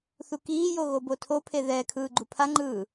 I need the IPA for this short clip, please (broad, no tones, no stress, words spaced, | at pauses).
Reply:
θukiːjo ɣobotʰopʰe ðɛ kʰɯːɡ͡ǃupʰaŋ͡ǃɯː